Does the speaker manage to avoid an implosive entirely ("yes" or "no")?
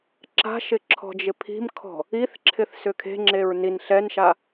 yes